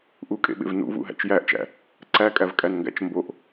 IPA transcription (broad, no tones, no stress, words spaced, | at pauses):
ʔukʼḛɓḛv nṵvṵɦæ̰t͡ʃ jæʔt͡ʃæ̰ | ǀækʼævkʼænŋɡæ̰t͡ʃ mboʔ